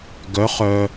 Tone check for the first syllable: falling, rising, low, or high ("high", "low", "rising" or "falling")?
rising